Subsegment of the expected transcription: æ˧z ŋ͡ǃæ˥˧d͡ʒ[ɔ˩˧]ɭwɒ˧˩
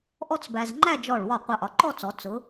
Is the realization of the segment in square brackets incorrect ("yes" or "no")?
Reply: yes